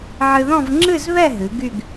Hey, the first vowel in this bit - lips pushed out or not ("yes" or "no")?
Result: no